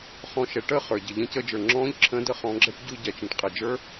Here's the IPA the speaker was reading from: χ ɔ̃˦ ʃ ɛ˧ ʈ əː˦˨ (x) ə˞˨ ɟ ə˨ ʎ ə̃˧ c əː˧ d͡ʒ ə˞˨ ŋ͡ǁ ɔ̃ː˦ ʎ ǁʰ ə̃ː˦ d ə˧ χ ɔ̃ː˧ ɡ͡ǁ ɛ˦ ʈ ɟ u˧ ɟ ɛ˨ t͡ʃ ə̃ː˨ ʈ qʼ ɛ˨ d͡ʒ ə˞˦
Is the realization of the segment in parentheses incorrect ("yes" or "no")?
yes